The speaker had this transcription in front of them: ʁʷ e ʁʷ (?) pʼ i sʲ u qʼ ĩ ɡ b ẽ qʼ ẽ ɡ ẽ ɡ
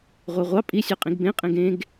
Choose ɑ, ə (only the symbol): ɑ